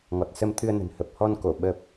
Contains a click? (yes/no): no